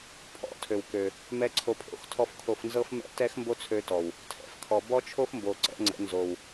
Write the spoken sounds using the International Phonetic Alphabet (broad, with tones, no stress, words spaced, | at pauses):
pʰɔ̰˦˨tʰø˨wkø˨ | mɛ˦ǀʰo˧pʰo̰˦x tʰɔ˦fkʰo˧f nzɤ˦fmɛ̰˦ tɛ˦xmbo˦t͡sʰø˧tɔ˨w | tʰɛ̰˨fkʰɔ˨ bɔ˦t͡ʃʰo˦fmbo˨ ǀɛ̰˦ŋ͡ǀə̰˨˦ nzo˨w